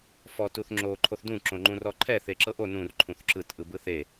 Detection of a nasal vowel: present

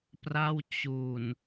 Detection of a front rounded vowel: absent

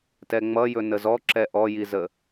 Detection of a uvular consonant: absent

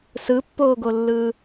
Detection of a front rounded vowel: absent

